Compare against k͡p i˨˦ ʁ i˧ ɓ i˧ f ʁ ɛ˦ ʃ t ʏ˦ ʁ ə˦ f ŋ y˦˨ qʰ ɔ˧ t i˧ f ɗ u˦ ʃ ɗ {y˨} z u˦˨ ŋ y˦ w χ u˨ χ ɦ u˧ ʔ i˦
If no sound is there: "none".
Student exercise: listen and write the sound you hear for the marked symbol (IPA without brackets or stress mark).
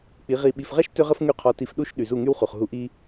y˨